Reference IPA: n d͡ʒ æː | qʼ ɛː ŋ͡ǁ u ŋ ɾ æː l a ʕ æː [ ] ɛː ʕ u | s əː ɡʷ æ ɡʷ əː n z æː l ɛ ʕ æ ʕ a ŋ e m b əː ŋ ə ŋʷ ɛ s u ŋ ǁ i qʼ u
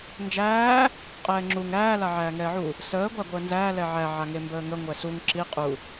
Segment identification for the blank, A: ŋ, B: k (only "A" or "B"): A